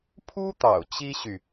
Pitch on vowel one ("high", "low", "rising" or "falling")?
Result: high